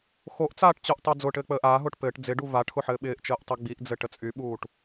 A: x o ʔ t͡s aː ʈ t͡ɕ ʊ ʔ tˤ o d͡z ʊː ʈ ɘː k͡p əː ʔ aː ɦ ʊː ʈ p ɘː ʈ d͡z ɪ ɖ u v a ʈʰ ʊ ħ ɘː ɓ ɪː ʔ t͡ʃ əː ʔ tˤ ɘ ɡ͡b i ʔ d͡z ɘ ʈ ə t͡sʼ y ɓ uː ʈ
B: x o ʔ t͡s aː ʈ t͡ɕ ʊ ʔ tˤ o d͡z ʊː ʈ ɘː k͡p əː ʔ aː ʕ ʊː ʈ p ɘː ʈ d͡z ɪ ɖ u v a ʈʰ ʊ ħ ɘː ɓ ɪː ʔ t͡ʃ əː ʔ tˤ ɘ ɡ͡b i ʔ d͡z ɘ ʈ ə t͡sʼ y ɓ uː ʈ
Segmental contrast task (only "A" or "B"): A